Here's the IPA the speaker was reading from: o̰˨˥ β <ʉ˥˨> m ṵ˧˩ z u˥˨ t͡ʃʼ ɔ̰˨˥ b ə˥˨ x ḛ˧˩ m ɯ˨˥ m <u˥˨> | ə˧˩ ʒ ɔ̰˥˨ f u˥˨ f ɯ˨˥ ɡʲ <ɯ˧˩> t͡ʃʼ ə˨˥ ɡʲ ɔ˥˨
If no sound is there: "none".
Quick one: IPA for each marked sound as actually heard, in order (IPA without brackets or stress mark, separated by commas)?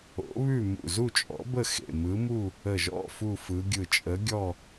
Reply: ʉ˥˨, u˥˨, ɯ˧˩